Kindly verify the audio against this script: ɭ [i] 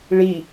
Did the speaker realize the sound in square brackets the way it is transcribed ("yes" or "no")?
yes